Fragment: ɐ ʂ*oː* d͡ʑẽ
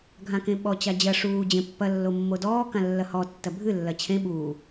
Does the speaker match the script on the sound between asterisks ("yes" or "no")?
no